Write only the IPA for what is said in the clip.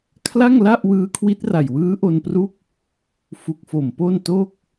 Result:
kʰla˥˩ŋla˥˩ʔ wɯː˦˥kʰwi˦˥t̚ra˨˩jwɯː˦˥ ʔo˧npru˦˥k̚ | fu˨˩k̚fo˨˩mpo˥˩n to˥˩k̚

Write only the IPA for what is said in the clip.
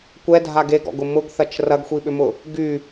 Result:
kʷɛdʱa ɡeɡɔ̰ɡʊ mʊɡθɐt͡ʃ rɐɡxʷiɓʏmʊ | ɡy

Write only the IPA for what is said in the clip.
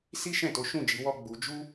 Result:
si˦ ʃɛ̃˦˨to˨˦ʃũ˦˨ d͡ʒi˨˦wɔ˦ɡ͡bu˧ d͡ʒu˦

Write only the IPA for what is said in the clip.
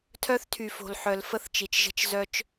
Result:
tʰœ˦θtʰy˨fo̤˨l ħœ˨lfə˦θt͡ʃi˨t͡ʃʒə̤˦t͡ʃ zœ˦t͡ʃ

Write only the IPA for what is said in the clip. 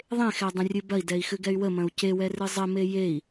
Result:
ðˤẽxɛdˤə̃rʲɨ bɐi̯dɛi̯xɨɡɛy̯ wəmɐ̃u̯ cewɛrɨ zˤəme jei̯

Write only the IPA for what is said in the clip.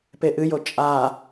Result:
peʔɨjo t͡ʃʼa

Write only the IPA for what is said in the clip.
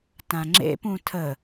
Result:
tãŋ͡ǁḛpũ tʰə

